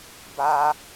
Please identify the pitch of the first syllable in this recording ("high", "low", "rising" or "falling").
high